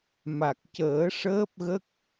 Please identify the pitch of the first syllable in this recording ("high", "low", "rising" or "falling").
low